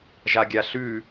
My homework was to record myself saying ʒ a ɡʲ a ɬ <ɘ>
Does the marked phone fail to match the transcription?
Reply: yes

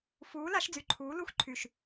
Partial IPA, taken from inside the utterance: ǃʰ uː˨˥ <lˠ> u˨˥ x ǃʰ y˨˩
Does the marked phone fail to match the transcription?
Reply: yes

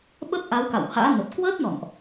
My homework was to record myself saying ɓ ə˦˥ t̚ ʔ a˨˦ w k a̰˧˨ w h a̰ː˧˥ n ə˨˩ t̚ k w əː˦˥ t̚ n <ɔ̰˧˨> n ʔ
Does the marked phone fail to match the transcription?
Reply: no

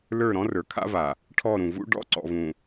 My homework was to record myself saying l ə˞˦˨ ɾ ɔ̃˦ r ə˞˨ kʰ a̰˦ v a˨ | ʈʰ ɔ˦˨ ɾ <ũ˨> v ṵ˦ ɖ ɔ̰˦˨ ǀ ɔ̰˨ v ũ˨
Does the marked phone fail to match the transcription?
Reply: no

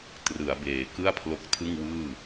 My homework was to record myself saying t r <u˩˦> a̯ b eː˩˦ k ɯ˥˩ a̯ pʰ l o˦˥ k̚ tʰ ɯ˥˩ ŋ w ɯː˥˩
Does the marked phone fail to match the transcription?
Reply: yes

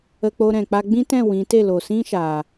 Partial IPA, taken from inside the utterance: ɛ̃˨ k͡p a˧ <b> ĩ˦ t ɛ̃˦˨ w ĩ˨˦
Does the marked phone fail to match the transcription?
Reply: yes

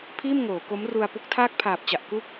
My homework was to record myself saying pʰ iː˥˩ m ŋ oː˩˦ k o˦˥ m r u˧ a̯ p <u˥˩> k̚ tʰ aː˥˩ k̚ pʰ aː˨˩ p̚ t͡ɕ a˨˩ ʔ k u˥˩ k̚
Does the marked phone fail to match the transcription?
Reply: yes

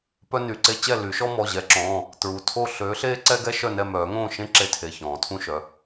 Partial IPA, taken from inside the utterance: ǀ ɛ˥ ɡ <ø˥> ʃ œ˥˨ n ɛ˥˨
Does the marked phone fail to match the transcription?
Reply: yes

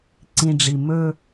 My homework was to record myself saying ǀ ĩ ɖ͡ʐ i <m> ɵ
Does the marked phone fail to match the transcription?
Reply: no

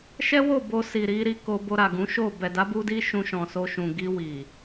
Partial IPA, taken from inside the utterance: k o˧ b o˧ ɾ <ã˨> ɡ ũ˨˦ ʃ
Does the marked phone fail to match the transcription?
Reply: yes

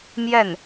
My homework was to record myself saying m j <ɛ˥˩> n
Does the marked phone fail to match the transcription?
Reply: no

